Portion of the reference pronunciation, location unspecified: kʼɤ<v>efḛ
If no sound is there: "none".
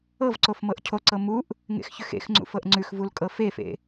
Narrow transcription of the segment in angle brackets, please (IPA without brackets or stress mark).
f